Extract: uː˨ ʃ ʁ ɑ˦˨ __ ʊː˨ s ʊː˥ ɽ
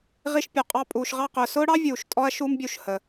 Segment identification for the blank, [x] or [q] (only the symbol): q